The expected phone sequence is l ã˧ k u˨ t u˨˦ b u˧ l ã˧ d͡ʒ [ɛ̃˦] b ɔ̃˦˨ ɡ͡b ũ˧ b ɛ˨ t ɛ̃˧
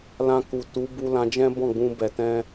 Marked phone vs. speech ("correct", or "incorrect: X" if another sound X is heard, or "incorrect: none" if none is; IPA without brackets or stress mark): correct